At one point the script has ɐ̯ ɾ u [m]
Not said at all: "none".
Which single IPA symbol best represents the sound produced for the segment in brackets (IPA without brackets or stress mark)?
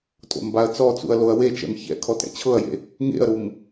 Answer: m